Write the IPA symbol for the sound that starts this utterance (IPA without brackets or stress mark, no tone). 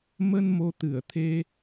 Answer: m